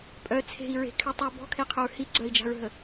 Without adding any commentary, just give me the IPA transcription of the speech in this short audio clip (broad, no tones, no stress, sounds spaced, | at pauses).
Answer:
pʼ œ t͡sʰ e̤ i̯ ɹ e̤ kʰ y tˤ y b ɔ̤ kʰ e qʰ œ ɹ h i ɡ͡ǀ œ i̯ d͡ʒ a̤ ɹ ɦ ə